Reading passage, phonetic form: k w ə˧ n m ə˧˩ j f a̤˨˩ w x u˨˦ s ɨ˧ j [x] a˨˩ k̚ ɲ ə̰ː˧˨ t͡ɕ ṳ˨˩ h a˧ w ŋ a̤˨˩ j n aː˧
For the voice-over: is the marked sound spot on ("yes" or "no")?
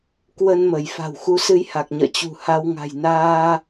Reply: no